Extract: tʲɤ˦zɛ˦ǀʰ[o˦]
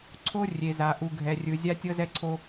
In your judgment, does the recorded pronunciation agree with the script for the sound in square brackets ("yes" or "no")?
yes